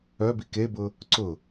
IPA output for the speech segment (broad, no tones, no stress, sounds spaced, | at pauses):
œ b i k e b ʊ | ǀ ʊ